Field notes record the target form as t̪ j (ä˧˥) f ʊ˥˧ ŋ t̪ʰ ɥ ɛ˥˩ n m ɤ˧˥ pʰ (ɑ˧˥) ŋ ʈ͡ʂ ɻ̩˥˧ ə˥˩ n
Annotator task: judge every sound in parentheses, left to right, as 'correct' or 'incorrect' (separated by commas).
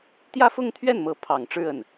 incorrect, incorrect